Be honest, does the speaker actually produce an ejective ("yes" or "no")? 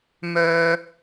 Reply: no